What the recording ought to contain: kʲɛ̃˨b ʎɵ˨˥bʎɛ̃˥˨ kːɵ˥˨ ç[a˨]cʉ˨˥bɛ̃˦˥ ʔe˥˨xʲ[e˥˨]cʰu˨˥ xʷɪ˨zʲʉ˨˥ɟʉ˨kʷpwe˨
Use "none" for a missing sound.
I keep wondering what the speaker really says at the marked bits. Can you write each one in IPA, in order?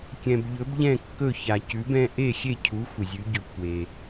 a˨, e˥˨

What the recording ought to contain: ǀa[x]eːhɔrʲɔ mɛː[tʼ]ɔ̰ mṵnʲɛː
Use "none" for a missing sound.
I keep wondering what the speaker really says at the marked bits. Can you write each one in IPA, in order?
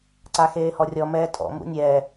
x, tʼ

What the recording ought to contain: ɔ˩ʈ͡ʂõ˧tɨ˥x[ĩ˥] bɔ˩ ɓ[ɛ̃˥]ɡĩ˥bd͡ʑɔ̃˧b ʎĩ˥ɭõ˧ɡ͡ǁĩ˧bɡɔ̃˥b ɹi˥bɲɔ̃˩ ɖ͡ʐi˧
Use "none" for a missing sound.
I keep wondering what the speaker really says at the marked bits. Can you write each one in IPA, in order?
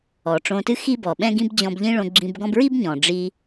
i˥, ɛ̃˥

